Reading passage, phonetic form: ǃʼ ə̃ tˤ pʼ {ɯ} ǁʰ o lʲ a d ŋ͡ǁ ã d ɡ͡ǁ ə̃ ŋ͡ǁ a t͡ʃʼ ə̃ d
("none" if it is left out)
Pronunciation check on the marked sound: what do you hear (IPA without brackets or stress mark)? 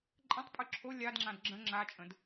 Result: ɯ